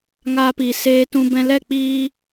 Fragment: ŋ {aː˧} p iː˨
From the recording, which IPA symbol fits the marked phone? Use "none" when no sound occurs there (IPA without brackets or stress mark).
aː˧